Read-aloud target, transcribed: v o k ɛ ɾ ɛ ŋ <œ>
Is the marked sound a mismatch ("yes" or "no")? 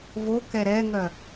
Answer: no